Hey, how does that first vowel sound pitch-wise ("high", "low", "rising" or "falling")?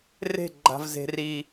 falling